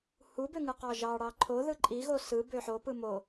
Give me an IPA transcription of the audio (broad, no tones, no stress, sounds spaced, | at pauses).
h u b ø ŋ ɯ q ɑ ʒ ɑ ɽ ɑ ǃʰ o ð ɯ ǃʼ i ɣ o s ɯ b ø ħ o p ɯ m o